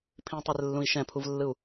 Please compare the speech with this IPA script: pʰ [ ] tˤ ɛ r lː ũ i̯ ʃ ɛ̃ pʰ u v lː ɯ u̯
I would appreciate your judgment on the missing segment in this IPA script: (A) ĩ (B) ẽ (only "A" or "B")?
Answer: A